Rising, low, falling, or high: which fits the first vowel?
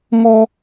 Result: high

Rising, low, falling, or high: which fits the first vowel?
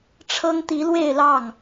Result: high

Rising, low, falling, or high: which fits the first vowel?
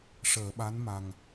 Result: low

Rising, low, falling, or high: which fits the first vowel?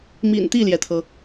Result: low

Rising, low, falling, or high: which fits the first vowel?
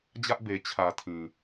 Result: high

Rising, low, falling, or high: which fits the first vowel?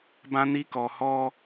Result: high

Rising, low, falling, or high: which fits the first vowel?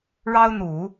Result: high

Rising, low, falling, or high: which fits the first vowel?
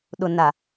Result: low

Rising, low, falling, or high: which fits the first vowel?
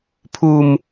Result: low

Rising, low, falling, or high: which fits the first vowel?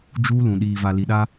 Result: high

